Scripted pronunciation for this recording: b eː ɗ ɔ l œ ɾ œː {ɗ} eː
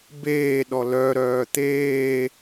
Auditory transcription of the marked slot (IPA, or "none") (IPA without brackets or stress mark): t̪